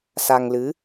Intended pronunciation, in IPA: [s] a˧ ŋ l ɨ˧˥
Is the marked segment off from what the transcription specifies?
no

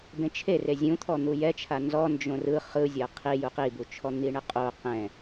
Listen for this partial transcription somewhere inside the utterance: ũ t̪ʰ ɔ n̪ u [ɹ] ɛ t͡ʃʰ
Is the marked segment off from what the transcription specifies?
yes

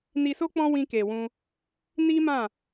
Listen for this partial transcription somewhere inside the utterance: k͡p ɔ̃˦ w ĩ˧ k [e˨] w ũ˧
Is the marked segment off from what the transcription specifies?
no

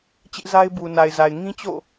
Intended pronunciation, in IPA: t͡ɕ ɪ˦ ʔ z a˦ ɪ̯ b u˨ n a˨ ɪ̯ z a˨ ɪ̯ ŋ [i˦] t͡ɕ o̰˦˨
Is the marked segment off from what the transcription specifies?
yes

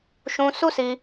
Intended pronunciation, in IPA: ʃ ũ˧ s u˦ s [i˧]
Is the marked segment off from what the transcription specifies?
no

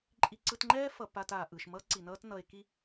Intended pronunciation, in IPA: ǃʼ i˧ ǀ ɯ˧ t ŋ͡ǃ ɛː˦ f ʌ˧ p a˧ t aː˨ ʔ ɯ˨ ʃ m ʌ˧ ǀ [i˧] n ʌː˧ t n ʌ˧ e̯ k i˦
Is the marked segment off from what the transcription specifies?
yes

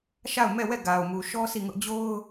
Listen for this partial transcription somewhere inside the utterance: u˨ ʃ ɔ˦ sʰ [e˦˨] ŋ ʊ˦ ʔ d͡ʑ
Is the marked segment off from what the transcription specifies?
yes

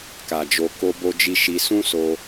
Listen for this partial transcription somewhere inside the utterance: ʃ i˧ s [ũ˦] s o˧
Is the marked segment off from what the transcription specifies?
no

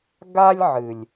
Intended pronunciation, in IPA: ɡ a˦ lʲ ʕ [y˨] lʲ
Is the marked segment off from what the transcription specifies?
yes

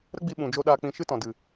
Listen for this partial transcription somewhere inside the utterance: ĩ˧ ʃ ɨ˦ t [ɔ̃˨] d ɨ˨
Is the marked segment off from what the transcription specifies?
no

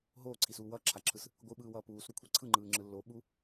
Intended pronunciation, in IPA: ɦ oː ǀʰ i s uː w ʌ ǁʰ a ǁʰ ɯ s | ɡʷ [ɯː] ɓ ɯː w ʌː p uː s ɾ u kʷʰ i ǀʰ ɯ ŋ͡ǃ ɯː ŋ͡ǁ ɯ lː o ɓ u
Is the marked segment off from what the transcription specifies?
yes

